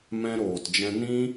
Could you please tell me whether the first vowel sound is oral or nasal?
nasal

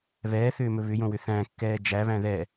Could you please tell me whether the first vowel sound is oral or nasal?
oral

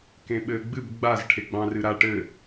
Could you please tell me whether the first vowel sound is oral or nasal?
nasal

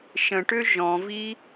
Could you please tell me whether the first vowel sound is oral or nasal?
nasal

